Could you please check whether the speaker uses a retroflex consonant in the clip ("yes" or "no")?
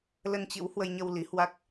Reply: no